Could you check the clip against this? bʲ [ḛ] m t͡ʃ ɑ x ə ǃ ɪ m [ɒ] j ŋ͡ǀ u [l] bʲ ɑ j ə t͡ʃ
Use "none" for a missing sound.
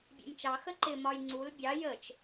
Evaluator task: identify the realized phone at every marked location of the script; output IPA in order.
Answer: ḛ, ɒ, l

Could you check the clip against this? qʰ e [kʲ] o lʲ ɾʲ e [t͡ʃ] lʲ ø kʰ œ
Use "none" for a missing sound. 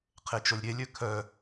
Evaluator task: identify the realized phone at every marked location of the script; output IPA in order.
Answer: t͡ʃ, none

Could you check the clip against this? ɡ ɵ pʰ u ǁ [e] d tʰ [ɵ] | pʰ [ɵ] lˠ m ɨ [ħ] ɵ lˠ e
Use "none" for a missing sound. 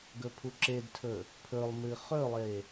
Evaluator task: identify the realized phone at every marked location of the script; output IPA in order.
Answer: e, ɵ, ɵ, χ

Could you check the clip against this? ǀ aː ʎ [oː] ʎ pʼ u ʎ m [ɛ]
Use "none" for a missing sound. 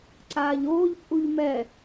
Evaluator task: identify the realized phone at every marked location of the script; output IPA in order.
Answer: oː, ɛ

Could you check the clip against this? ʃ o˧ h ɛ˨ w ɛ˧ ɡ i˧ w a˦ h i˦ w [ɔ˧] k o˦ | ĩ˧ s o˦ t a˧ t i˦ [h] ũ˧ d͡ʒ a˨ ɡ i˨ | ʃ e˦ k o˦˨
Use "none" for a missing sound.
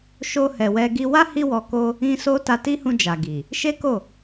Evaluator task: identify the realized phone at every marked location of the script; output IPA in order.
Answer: ɔ˧, h

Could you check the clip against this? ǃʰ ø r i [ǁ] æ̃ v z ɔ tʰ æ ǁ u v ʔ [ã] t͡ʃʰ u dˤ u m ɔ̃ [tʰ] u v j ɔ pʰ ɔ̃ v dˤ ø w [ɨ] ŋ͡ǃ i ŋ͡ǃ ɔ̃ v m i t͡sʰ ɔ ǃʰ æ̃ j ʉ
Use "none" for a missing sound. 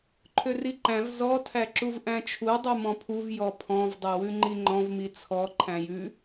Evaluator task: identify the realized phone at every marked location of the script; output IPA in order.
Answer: ǃ, æ̃, pʰ, ʉ

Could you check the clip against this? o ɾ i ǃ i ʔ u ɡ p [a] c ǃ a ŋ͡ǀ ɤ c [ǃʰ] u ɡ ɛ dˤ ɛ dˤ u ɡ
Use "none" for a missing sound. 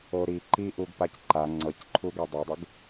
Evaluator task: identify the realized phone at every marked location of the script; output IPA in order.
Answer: a, ǃʰ

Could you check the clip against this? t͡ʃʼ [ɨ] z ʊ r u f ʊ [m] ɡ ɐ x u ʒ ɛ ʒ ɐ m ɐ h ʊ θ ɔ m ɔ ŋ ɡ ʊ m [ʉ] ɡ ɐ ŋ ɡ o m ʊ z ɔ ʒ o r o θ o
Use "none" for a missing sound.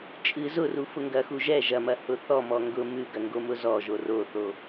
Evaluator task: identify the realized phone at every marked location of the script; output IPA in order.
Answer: ɨ, ŋ, ʉ

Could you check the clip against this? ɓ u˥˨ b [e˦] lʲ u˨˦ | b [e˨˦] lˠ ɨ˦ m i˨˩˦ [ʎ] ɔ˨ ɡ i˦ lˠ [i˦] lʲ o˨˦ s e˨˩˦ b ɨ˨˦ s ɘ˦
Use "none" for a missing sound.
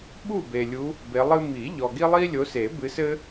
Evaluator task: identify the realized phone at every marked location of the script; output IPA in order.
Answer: e˨, e˨˦, ʎ, i˦

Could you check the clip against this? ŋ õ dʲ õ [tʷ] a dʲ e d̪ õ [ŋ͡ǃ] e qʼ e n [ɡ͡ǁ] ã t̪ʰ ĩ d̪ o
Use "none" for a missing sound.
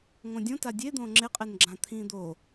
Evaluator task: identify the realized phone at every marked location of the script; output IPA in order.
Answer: t, ŋ͡ǁ, ɡ͡ǁ

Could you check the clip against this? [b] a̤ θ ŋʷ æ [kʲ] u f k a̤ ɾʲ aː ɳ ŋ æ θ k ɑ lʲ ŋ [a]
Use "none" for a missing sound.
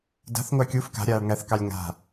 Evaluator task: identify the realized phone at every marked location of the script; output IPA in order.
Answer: d, kʲ, a̤

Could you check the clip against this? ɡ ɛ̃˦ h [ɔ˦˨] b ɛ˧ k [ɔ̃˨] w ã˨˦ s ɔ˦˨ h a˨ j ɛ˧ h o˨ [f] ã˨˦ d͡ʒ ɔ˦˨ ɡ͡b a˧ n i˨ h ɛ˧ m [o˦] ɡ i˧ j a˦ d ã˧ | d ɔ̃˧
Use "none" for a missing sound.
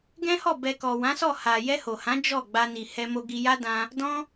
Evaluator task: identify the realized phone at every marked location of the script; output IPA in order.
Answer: ɔ˦˨, ɔ˨, h, o˧

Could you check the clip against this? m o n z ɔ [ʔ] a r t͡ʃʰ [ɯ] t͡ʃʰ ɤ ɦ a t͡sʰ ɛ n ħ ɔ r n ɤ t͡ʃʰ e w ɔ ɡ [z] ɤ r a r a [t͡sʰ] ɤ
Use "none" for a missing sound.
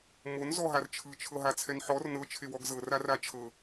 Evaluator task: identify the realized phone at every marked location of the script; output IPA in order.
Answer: ɦ, ɯ, z, t͡ʃʰ

